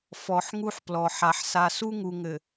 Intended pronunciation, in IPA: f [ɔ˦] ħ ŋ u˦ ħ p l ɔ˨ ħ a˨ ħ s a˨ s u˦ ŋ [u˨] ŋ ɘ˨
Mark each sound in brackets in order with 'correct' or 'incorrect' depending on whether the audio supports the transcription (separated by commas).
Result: incorrect, correct